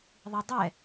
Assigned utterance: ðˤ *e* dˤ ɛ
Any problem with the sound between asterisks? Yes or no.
yes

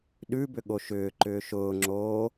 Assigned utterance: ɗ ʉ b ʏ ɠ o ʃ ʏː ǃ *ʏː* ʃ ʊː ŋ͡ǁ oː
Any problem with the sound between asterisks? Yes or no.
no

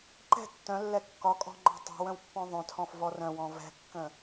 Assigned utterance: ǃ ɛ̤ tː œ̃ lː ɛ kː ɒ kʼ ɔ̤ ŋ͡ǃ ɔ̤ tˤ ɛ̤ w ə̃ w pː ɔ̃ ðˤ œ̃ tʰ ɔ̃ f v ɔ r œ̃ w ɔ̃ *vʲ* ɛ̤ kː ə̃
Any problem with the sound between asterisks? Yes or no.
yes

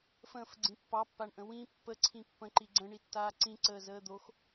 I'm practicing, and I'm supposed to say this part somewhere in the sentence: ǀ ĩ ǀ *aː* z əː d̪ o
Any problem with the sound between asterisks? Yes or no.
yes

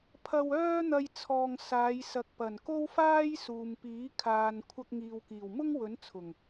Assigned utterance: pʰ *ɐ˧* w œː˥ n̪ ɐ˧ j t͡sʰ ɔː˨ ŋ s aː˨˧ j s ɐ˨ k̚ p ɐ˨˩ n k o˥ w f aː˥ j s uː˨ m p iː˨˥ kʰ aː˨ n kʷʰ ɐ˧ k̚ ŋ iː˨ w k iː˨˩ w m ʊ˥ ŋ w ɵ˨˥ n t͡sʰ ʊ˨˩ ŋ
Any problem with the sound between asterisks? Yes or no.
no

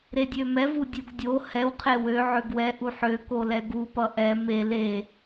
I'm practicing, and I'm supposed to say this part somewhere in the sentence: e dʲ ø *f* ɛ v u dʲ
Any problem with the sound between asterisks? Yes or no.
yes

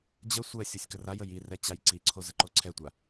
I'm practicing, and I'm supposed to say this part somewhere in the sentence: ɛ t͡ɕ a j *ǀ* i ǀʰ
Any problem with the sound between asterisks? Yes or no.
no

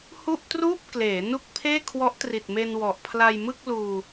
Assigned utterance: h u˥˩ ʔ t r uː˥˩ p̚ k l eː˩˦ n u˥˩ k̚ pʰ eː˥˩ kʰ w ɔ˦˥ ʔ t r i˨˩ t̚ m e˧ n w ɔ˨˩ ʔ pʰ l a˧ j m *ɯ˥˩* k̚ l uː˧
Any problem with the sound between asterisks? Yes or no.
no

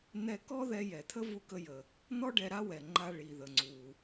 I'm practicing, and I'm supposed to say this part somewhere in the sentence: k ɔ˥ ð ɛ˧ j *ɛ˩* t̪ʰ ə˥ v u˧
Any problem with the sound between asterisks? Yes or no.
no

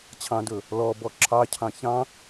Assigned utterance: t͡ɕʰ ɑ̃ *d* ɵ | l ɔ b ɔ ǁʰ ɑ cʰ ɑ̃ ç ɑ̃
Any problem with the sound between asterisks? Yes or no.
no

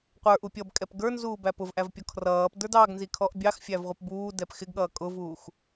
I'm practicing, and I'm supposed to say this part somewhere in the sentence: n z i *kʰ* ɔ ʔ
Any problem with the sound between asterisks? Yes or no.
no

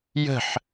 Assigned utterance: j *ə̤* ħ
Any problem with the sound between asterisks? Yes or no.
no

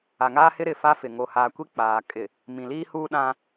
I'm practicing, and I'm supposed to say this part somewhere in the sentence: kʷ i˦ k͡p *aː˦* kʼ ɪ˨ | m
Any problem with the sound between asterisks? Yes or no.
yes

